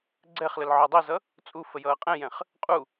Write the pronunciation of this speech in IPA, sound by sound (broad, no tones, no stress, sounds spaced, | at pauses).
ɡ͡ǀ ɛ χ l ə l ʕ ɔ dˤ i z ʌ | t͡sʼ u f ə j ʌː qʼ ɛ̃ j ɛ̃ χ | qʼ u